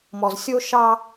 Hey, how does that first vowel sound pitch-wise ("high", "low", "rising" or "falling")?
low